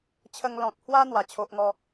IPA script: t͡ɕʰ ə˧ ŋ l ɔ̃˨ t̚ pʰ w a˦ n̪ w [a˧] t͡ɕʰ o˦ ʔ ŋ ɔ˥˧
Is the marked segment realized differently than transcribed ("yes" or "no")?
yes